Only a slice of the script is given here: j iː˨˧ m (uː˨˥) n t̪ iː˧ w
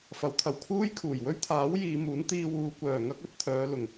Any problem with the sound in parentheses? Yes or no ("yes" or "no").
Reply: no